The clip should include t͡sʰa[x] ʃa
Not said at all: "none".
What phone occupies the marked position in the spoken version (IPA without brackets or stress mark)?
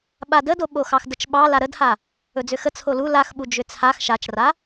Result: x